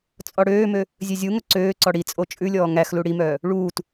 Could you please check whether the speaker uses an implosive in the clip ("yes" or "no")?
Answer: no